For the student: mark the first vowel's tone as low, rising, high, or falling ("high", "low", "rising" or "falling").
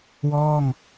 falling